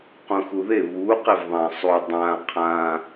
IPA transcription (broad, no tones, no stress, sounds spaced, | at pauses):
q ũ x u ð e β u q e v ðˤ ã sˤ u dˤ ã qʰ ã